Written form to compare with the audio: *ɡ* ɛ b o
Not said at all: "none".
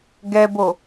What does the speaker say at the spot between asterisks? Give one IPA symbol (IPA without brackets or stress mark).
ɡ